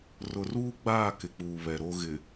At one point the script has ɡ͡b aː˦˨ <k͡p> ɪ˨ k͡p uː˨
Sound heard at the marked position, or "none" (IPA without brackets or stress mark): k